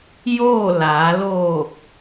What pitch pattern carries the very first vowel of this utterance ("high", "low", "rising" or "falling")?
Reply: falling